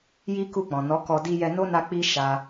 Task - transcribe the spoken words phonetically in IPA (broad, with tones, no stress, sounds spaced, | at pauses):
j i˦ k u˦˨ k͡p ɔ̃˨ n ɔ˨˦ k ɔ˧ d i˧ j ɛ˧ n o˦ n a˧ k͡p i˧ ʃ a˧